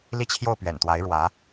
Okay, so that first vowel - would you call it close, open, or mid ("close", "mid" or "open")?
close